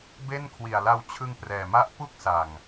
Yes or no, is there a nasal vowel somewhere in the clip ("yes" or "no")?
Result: no